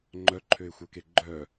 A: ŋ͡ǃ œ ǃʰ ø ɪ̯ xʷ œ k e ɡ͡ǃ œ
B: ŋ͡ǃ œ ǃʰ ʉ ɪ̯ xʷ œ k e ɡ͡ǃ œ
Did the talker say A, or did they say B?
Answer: A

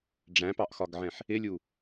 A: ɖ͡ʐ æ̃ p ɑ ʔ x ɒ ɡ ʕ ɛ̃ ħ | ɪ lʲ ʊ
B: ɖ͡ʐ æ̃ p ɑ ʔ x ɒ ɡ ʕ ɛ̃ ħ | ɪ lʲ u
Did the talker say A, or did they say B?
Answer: B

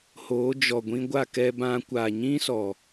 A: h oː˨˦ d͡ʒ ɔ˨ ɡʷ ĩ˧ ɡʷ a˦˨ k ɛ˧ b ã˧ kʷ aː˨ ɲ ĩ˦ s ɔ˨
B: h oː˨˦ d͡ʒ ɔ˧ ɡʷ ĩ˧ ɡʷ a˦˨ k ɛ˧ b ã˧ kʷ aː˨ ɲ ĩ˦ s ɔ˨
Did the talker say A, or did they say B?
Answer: A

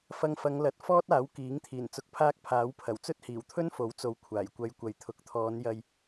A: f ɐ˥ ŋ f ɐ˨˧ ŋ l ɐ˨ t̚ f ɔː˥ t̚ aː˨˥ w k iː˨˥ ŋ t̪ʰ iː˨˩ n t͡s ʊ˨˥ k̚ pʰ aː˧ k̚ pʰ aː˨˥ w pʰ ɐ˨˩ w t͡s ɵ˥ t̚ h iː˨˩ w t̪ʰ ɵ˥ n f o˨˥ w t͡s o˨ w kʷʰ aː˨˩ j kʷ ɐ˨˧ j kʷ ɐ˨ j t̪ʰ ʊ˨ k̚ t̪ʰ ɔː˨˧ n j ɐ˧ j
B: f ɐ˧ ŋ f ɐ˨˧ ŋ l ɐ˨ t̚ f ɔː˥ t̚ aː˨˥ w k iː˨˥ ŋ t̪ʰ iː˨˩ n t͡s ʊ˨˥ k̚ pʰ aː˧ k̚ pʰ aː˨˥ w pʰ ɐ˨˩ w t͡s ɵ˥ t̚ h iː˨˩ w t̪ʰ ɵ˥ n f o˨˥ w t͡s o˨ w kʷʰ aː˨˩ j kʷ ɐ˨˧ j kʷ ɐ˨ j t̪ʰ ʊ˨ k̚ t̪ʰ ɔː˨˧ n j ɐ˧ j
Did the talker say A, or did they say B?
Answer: B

